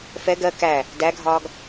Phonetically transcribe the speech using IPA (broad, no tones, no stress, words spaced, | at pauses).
fɛ ɡɜ kæ | dæɡʱɒːɡ